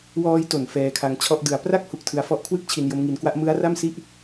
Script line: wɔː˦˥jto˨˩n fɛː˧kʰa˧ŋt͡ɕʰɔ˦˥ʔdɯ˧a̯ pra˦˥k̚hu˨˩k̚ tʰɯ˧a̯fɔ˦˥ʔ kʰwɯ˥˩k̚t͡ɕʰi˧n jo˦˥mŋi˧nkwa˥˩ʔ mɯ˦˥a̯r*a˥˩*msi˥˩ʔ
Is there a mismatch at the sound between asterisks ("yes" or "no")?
no